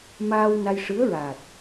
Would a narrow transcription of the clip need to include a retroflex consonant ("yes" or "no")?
yes